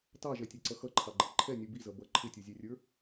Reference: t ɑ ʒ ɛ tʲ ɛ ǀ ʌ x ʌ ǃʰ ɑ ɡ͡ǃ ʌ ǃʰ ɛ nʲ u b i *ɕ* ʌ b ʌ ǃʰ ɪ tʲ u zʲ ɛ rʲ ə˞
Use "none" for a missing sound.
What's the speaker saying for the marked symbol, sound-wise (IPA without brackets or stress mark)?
z